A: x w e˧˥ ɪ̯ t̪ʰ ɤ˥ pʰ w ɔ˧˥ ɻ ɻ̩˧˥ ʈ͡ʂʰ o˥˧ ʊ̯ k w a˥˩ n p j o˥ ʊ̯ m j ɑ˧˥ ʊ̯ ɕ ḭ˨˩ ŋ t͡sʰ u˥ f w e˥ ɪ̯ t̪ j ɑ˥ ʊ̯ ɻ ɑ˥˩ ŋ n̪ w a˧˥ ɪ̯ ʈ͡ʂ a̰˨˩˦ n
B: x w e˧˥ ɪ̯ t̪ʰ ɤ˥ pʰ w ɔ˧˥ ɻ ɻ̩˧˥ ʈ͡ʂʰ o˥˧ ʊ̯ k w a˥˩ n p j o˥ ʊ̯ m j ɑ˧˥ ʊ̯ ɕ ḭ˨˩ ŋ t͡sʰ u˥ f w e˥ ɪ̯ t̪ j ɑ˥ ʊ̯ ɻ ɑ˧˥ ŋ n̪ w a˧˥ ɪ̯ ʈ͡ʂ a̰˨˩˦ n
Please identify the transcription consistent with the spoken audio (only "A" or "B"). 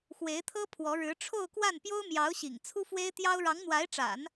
B